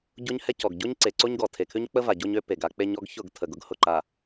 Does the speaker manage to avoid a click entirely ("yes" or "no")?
no